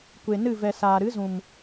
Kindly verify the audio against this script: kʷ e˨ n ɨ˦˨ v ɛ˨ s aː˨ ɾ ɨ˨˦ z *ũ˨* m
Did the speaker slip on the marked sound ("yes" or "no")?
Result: no